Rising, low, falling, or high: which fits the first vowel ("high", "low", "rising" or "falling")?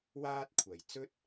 high